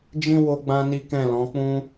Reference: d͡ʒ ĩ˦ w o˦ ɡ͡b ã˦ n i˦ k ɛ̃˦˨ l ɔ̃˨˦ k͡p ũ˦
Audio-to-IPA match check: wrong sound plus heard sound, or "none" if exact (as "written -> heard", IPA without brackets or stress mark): none